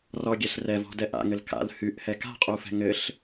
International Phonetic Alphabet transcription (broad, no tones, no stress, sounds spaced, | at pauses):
r ɔ ɡʲ ɛ ɬ r ɛ v ɔ̤ d ɛ ʔ a̰ ŋ ɘ l k a̰ l h y ʔ h ɛ k a̤ qʼ u f ɛ̤ ŋ ɘ ɬ